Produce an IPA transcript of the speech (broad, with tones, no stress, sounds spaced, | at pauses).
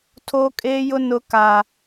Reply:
tʰ o˦ kʼ eː˦ j ʊ˦ n ʊ˦ k a˦